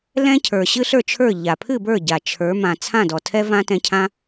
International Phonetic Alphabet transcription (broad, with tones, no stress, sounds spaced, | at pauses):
l ɛ̃˥ cʰ ə˞˩ ɕ ɨ˥ ɬ ə˞˥˩ t͡ʃʰ ə˞˥˩ ʎ a˩ pʰ ɨ˥˩ b ə˞˥˩ ɟ a˩ t͡ʃʰ ə˞˩˥ m ã˩ t͡sʰ ã˥˩ d ɔ˩ tʰ ɛ˥ v ã˥ t ɛ̃˧ cʰ ã˥